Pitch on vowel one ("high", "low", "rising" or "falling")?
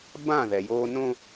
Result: falling